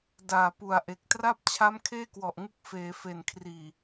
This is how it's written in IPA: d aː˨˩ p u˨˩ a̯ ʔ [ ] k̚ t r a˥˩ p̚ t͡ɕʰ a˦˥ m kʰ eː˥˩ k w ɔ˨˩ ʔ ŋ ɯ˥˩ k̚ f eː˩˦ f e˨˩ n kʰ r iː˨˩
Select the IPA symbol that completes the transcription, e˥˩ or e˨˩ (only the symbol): e˨˩